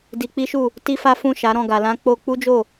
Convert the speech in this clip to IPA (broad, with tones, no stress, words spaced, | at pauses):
di˧k͡pi˦ʃu˦˨ | ti˦fa˦ fũ˦˨ʃa˨˦ɾɔ̃˦˨ ɡa˨lã˧ k͡po˧ k͡pu˦d͡ʒo˦˨